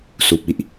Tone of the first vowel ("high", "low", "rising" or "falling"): low